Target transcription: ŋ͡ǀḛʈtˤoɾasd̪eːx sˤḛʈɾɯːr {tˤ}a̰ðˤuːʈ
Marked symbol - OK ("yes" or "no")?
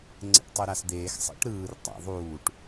yes